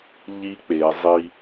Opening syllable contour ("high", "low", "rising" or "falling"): high